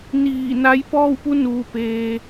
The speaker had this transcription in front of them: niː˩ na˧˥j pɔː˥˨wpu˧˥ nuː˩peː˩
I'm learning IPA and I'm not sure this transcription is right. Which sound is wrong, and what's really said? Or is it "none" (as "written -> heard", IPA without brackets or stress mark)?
iː˩ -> iː˧˩